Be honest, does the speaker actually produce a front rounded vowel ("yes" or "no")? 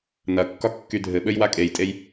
yes